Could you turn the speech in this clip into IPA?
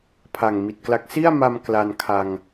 pʰ a˨˩ ŋ m i˨˩ t̚ k l a˦˥ k̚ s i˥˩ a̯ m a˧ m k l a˧ n kʰ a˧ ŋ

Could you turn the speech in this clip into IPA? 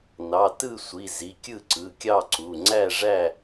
n ɑ˩˧˩ t ɯ˥˨ sʷ i˩˧˩ z i˩˧˩ kʲ ɯ˥˨ ǀ ɯ˩˧˩ kʲ ɑ˥˨ ǀ u˩˧˩ ŋ͡ǀ æ˥˨ ʐ æ˥˨

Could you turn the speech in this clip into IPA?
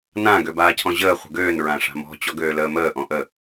n ã ɡ ø b aː cʰ ɔ̃ ʑ əː χʷ ə̤ ɡ øː n ɹ ã ʂ a̤ m ɔ̤ t͡ɕ ɔ ɡ øː l əː m əː ʔ ɔ̃ ʔ ə

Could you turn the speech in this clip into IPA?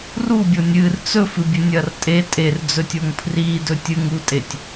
r u bʲ o nʲ ɨ r t͡s ɵ f ɨ bʲ ɵ nʲ ɐ r tʼ e tʼ e r d͡z ɵ tʲ o ŋ pʰ r i d ɵ tʲ ɨ ŋ u tʼ e tʲ

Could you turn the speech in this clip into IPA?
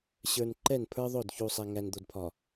ɕ ə˞˨ n ǃ ɛ˦˨ n pʰ ə˞˦ ðˤ o˦˨ d ç u˨ sˤ ɛ˨ ŋ æ˨ n d̪ o˨ d pʰ ɒ˨

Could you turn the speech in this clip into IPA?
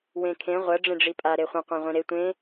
w ẽ kʰ ẽ ʁʷ ɐ ɖ͡ʐ ẽ ɖ͡ʐ i pʼ a ɾ e χʷ ə̃ qʷ ã ʁʷ ĩ ɾ e tʷ ẽ

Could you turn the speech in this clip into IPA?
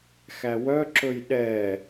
x æ w œ ǁ ɵ j ɗ ɛ

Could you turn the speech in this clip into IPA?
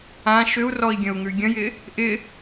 ã ʃ ʏ u̯ r ɔ i̯ ɡʲ ə̃ u̯ ŋ ʉ ɡʲ ə̃ j ɪ | ʔ ɪ

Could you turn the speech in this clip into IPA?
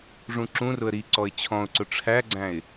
ʐ ũ ǁ ũ r ʊ ə̯ ɾ i ǀ ɔ ɪ̯ t͡ɕʰ ɔ̃ ʊ̯ ǀ ʊ ʈ͡ʂʰ æ ɡ͡ǀ æ̃ ɪ̯

